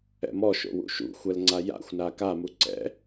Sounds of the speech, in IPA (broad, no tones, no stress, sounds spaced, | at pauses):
ɛ̰ m ɔ ʃ o̰ w ṵ ʃ ṵ xʷ ɛ l ŋ͡ǀ a j a̰ xʷ n a k a m u ǀ ɛ̰